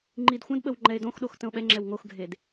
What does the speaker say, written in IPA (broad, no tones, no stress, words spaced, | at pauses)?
ŋ͡ǃidxʷə̃dɓəw ŋ͡ǃɛe̯dõxɗox tə̃o̯ɓɛŋ͡ǁɛw ŋoxɡʱed